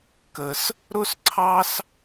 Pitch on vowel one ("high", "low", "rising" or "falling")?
low